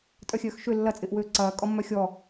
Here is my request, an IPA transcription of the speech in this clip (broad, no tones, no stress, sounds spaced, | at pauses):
tʼ œ xʲ œː x ʃ ø lː ɐ t͡sʼ ɪː ʔ w øː ǀ ɐː kʼ ɔ mː œ xʲ ɔ